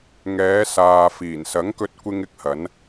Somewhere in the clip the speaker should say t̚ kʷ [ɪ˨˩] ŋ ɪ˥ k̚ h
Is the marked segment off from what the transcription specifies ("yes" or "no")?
yes